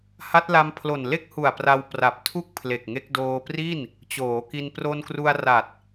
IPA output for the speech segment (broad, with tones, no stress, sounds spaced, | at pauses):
h a˦˥ t̚ l a˧ m pʰ l o˨˩ n l e˥˩ k̚ h u˨˩ a̯ p r a˧ w p r a˨˩ p̚ tʰ u˥˩ k̚ pʰ l e˨˩ k̚ ŋ e˦˥ k̚ d oː˧ p r i˥˩ n | t͡ɕ oː˩˦ k i˧ n p r o˧ n k r u˧ a̯ r a˨˩ t̚